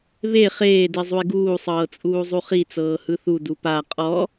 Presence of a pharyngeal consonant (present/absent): absent